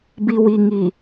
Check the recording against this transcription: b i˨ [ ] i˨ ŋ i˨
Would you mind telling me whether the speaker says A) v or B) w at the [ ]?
B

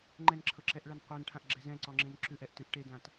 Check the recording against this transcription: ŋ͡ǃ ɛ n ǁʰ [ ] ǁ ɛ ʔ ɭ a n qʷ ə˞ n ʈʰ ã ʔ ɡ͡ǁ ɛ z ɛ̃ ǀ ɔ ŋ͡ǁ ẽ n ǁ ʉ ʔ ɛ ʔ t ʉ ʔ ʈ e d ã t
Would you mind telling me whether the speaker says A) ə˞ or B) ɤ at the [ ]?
B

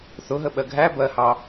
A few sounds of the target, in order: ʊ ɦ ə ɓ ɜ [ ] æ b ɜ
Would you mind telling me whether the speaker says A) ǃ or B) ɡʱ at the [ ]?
B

